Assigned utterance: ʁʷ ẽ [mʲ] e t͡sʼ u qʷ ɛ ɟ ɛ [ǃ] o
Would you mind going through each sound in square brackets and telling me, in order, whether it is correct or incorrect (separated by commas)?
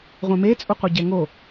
incorrect, incorrect